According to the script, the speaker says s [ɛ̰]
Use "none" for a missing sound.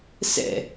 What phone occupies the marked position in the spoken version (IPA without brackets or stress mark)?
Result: ɛ̰